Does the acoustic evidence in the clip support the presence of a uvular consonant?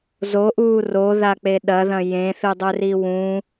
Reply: no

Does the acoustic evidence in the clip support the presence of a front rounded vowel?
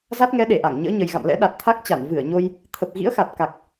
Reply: no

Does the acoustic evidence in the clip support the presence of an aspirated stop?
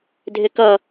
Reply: no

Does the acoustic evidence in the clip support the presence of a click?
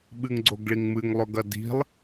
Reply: yes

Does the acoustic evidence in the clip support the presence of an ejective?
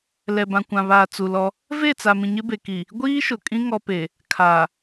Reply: yes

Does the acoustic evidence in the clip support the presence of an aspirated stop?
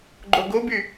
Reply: no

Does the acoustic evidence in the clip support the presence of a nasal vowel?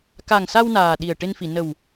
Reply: no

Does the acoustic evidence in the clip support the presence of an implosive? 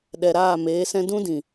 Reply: yes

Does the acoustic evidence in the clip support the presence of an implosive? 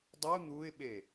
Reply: yes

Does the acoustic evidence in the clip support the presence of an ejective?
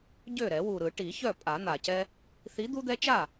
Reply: yes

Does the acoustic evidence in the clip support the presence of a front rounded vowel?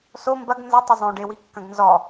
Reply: no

